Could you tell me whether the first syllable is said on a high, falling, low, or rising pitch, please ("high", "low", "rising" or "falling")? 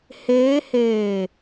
rising